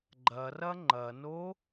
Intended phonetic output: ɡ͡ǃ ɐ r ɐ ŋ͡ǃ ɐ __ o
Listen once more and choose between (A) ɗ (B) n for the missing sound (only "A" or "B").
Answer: B